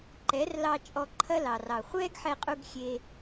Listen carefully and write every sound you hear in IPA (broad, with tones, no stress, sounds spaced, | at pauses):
ǃ ɛ˨˦ r l ɑ˧ t͡ʃʼ ɔ˧ ǃʰ ɐ˦ l ɑ˨ r ɑ˨ χʷ ɛː˦ ɡ ħ ɛ˧ qʼ u˧ ɡ xʲ e˧